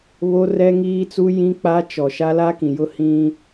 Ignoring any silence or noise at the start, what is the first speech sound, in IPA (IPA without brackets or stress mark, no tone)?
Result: β